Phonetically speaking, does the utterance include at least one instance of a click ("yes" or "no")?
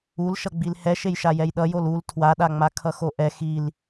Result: no